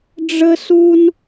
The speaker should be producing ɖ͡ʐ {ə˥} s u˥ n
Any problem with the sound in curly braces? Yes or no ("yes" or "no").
no